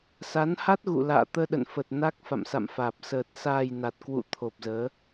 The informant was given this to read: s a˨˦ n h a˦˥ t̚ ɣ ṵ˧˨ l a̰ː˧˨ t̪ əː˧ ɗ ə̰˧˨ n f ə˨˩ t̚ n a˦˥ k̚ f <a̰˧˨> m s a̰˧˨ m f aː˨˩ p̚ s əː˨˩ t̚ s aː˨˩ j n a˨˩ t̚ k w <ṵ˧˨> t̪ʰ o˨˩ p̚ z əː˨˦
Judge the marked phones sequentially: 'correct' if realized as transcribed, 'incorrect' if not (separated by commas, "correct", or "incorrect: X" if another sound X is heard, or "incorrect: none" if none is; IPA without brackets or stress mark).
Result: correct, correct